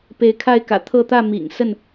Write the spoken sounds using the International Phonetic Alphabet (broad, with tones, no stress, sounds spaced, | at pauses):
p e˨˦ ɪ̯ kʰ a˥˨ ɪ̯ k ä̰˨˩ t̪ʰ ɤ˥˨ t̪ ä˥˨ m ḭ˨˩ ŋ s ə˥˨ n